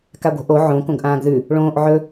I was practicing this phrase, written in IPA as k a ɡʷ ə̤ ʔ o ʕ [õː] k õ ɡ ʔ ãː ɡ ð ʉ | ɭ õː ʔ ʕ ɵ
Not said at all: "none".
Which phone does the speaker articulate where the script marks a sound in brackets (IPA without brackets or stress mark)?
õ